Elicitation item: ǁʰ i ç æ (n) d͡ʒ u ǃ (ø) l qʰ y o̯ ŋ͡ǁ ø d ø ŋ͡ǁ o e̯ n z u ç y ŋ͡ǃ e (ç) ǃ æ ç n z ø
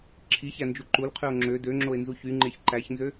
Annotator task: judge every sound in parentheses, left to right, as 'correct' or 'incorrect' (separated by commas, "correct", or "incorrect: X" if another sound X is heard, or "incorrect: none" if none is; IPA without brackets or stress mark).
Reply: correct, incorrect: u, correct